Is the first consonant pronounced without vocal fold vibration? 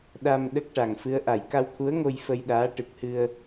no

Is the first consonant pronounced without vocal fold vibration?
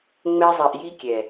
no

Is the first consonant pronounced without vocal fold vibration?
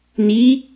no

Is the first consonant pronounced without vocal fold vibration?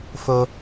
yes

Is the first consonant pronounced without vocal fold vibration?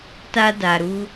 yes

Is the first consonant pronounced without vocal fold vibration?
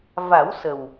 no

